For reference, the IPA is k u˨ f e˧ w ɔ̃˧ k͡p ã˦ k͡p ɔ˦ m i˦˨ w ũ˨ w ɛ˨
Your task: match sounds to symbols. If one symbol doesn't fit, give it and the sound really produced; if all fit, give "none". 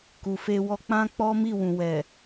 ɔ̃˧ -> ɔ˧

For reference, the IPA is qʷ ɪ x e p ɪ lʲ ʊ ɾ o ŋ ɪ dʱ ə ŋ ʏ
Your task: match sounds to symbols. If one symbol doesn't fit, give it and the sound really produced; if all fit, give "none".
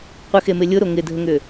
p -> m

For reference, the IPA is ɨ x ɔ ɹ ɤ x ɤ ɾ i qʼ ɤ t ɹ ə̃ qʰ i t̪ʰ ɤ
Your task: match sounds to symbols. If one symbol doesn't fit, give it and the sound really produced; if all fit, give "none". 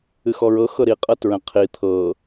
none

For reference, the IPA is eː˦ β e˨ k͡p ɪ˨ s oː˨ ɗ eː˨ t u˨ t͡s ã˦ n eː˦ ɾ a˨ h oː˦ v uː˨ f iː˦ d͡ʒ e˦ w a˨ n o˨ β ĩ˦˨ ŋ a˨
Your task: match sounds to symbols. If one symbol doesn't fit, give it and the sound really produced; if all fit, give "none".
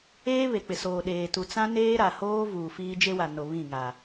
none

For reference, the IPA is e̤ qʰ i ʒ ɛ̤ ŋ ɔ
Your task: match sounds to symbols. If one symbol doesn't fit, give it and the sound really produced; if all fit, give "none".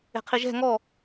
none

